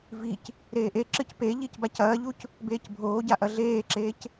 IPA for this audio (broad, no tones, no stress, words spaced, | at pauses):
vic | ɾeːʔeǁɨc pe ʎicbacɐːʎuc | beːcbʱoːɟa ʔɐɮeːǁeːc